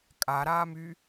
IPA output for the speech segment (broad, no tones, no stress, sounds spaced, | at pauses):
kʼ a ɾ aː m y